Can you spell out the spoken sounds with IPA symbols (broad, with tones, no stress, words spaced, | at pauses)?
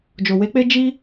d͡ʒo˨we˦k͡pe˦ d͡ʒi˦